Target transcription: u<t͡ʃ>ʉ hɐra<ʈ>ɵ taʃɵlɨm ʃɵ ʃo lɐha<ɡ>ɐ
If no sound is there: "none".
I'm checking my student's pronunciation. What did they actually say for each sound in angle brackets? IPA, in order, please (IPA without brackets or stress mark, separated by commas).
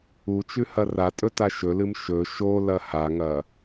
t͡ʃ, tʼ, ŋ